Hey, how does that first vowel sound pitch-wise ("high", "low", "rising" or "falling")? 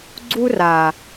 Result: high